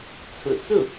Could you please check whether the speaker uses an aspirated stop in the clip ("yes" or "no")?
yes